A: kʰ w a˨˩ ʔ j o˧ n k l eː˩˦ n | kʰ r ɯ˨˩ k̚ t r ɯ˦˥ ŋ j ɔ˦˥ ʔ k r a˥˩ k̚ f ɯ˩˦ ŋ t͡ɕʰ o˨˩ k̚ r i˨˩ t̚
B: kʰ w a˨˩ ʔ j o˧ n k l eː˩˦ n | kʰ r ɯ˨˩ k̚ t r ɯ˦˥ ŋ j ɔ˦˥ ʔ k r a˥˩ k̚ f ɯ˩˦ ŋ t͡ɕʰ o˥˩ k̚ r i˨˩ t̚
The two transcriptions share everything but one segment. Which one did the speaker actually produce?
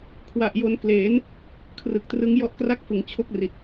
B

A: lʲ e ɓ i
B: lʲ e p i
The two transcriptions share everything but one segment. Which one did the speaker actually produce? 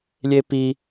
B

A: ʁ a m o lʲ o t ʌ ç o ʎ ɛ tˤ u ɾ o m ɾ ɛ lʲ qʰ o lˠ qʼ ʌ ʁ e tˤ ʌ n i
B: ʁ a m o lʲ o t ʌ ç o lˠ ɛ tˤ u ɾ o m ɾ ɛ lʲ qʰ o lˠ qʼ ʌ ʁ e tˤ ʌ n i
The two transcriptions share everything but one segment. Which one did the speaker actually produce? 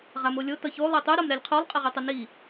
B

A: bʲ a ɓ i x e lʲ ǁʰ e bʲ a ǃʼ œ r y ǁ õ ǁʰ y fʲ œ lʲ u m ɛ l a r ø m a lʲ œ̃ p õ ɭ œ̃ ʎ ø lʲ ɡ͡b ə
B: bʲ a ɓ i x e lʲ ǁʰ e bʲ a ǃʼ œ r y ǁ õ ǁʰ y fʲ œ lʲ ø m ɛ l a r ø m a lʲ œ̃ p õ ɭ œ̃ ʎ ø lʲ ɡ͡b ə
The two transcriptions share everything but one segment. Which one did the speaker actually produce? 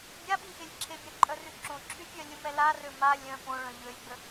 A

